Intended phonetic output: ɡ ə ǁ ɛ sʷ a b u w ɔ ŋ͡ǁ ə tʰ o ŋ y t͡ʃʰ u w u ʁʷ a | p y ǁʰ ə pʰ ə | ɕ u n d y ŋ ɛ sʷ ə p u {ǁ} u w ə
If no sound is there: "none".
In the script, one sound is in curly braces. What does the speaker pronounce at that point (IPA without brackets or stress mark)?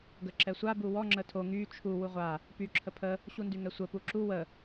ǁ